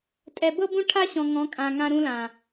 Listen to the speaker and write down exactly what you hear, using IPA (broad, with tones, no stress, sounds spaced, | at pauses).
tʼ ɛ˨ b ɤ˦ b ũ˦ ʈʰ a˦ ɕ ɔ̃˨ ŋ ɔ̃˨˦ kʼ ã˨ ŋ ã˦ ɾ ũ˦ l ã˨